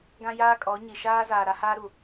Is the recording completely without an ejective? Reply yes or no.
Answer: no